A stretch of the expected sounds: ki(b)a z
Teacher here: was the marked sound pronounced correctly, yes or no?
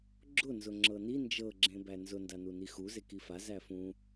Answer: no